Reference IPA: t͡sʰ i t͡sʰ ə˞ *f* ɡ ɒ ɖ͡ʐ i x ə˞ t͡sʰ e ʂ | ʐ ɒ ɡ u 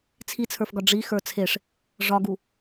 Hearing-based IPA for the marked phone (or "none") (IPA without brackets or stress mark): f